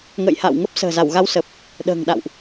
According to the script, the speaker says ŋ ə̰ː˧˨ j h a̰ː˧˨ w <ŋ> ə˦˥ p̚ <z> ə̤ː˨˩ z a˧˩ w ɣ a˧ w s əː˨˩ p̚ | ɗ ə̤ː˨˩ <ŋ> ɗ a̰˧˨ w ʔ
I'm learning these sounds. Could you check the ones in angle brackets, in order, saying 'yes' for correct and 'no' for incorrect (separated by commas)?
yes, no, yes